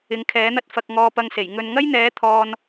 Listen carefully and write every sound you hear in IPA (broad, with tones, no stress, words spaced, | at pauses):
ɪ˨˧ŋkʰɛː˨˥n̪ɐ˥t̚fɐ˧k̚ ŋɔː˧pɐ˧ŋse˨˩j ŋɵ˨nŋɐ˥jn̪ɛː˨˥ t̪ʰɔː˧n